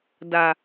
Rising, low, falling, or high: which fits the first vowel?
low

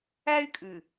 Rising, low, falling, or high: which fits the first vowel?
high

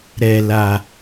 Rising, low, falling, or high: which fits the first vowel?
low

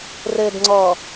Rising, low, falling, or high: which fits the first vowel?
low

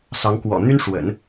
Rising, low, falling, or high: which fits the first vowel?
rising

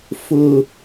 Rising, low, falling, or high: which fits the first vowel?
high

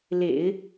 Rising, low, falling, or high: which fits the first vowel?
low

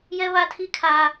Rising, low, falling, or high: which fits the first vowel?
high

